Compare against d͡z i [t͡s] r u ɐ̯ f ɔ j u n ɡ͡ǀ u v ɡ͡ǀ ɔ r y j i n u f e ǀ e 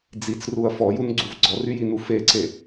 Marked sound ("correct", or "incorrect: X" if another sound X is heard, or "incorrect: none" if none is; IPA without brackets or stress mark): correct